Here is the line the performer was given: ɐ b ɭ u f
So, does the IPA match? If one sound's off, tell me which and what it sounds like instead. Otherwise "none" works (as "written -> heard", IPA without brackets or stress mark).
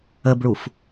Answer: ɐ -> ə